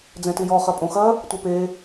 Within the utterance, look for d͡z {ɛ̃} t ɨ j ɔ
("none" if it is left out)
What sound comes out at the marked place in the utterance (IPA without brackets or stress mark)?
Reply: ɛ̃